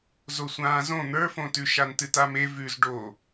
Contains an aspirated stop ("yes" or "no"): no